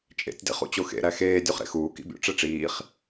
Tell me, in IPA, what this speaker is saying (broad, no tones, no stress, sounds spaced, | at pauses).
t͡ʃʼ ḛ tʲ d ḛ χ ṵ t͡ɕ o x ḛ ɾ æ x eː dʲ u χ ɾ ḛ x uː k ḭ bʲ o̰ ʈ͡ʂ e ʈ͡ʂ iː χ